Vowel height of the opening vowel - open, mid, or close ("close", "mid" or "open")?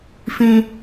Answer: close